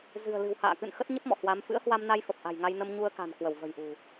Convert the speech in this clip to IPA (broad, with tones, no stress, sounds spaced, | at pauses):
z ɨ̤˨˩ ə̯ l ɨ̤˨˩ w h a̰ː˧˨ k ɨ̰˧˨ n x ə˦˥ t̚ ɲ ə˦˥ p̚ m ɔ̰˧˨ h w a˨˦ m f ɨ̰˧˥ ə̯ h w a˧ m n a˧ j f ə˨˩ p̚ ʔ a̤˨˩ j ŋ a˧ j n ə˧ m ɲ u˧ ə̯ k a̤˨˩ n k w ə˧˩ w v ə̤˨˩ j ʔ ṳ˨˩